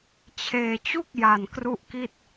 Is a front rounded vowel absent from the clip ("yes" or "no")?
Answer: yes